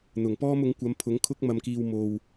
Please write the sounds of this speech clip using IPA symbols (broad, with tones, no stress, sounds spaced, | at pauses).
n̪ ʊ˨˩ ŋ p ɔː˥ m ʊ˨˥ ŋ kʷ ɐ˨˧ m pʰ ʊ˨˥ ŋ kʰ ʊ˥ k̚ m ɐ˧ m k iː˧ w m o˧ w